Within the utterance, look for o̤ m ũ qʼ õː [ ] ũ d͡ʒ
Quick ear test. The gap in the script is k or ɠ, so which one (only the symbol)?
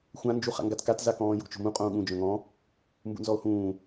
ɠ